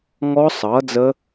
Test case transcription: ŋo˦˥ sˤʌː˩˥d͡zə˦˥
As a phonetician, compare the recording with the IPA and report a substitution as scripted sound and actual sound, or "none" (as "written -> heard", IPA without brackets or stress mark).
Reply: o˦˥ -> ɔ˦˥